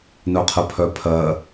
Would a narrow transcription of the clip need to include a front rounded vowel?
yes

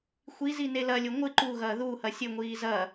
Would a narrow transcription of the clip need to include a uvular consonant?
no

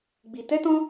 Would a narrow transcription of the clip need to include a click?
no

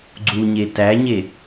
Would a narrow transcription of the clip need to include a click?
yes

